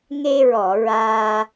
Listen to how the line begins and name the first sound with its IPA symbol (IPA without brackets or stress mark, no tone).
ŋ